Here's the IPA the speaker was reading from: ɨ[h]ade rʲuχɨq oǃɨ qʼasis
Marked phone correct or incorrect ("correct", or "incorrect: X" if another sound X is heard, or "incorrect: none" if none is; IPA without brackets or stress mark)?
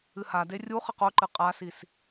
correct